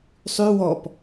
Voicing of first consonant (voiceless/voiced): voiceless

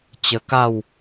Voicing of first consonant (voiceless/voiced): voiceless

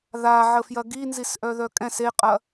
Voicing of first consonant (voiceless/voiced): voiced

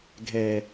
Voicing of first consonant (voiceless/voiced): voiced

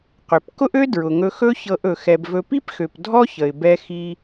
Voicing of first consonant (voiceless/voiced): voiceless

